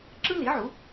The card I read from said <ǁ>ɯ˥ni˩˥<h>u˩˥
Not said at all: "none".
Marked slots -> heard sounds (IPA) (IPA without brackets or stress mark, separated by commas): ǁ, ʕ